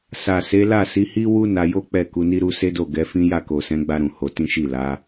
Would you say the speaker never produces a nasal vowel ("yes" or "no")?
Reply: no